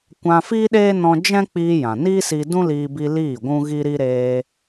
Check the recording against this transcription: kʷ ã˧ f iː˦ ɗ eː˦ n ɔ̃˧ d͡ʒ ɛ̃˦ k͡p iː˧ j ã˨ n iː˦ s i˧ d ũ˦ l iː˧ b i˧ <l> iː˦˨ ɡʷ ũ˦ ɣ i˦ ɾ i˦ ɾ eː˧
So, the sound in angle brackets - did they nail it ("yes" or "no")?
yes